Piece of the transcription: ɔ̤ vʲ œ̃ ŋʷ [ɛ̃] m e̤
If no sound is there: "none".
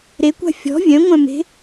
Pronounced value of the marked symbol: œ̃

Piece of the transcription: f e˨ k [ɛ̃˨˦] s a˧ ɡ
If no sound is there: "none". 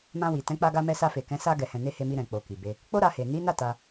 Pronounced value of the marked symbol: ɛ̃˨˦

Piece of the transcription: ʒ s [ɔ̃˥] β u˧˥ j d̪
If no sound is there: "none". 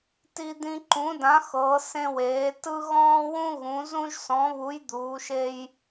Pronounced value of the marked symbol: ɔ̃˧˥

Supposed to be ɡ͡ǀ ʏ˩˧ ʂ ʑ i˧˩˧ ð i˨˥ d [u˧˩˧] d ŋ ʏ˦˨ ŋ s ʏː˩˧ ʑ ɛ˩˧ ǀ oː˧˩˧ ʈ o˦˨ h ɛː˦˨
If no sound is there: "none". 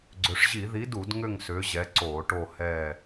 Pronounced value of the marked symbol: u˧˩˧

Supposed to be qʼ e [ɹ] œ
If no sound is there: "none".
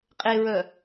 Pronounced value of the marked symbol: ɹ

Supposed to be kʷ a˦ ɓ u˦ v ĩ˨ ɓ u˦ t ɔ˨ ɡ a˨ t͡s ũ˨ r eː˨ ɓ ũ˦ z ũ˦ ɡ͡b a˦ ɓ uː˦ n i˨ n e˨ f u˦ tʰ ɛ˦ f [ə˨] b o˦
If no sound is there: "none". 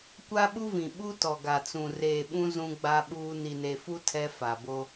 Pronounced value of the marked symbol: a˨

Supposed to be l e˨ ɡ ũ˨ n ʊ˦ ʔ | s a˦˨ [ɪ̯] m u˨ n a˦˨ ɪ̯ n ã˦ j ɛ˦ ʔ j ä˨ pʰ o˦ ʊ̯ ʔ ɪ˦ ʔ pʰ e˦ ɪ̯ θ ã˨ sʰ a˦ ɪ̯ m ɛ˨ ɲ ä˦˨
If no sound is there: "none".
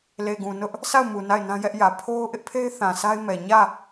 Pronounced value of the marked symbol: ʊ̯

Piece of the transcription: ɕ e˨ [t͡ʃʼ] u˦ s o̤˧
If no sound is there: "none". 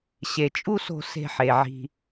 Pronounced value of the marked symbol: t͡ʃʼ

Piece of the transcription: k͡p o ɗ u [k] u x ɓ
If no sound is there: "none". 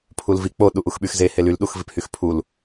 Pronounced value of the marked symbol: ʔ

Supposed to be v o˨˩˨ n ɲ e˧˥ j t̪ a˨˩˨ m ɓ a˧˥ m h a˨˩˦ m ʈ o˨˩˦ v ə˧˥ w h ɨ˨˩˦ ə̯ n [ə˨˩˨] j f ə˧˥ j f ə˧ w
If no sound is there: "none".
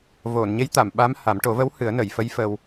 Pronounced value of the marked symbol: ə˨˩˨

